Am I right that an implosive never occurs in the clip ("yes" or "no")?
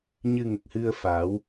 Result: yes